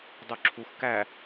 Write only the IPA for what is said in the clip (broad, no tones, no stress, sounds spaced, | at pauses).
dˤ u ǁʰ u x k æ